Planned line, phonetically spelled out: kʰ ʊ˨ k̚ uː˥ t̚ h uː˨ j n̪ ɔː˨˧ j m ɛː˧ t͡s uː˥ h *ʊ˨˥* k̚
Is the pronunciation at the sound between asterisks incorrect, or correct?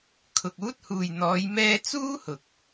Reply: incorrect